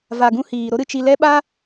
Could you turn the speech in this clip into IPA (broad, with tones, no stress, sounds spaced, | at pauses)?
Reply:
v a˨ ɡ ũ˧ h iː˨ ɾ o˦ ɾ ɨ˧ t͡ʃ i˧ l ɛ˦ ɓ a˦